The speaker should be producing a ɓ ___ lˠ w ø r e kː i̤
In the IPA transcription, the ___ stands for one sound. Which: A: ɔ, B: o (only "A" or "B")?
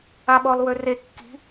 A